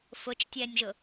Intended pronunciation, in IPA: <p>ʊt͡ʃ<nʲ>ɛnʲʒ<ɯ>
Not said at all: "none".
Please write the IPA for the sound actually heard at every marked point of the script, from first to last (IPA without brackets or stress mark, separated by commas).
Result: f, tʲ, ʊ